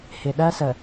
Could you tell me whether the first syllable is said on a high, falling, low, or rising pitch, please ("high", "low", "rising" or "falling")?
low